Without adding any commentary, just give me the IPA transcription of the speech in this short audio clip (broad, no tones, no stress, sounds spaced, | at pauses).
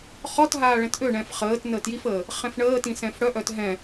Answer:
χ ɔ t ɦ aː ɭ ɛ̃ t ʔ ø ɳ ɛ̃ f χ əː t n əː t j i f əː | χ ɛ̃ f ɳ əː t ĩ s ɛ̃ f ɽ œ ʔ œ t ɦ ɛ̃